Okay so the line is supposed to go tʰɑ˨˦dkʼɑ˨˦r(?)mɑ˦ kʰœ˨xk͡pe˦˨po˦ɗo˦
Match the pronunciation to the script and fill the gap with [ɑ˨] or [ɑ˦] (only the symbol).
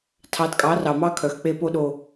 ɑ˨